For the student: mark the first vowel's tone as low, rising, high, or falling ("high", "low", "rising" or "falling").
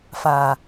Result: low